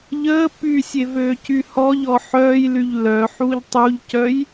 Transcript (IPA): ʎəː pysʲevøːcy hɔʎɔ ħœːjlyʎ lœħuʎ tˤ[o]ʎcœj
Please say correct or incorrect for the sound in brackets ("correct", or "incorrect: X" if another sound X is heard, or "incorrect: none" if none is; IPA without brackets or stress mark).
incorrect: u